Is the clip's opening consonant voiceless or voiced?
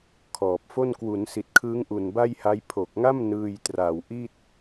voiceless